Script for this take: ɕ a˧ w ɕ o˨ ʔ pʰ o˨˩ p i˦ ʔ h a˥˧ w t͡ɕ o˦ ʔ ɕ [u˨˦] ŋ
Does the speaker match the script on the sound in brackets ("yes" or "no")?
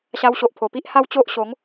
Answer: no